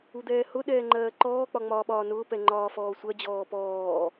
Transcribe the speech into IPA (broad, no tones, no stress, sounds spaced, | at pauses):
u d̪ ɛː h ʊ ɗ ɛː ŋ͡ǃ ɜː ǃ ɔː k͡p ɒ ŋ͡m ɒː ɓ ɒː n ʊː p ɛ ŋ͡ǃ ɒː f ɔː sʷ ɜ d͡ʑ ɔː p ɔː